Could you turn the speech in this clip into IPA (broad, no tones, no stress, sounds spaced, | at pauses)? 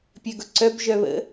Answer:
pʲ ə ɡ ʊ ǀ œ b ʒ œ β ə̰